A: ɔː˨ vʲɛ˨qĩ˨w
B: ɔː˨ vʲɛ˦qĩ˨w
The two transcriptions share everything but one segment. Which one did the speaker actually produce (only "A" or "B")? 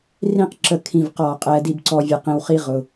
A